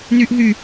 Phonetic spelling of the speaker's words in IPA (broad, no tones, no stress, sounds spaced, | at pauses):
n yː ʔ ɦ y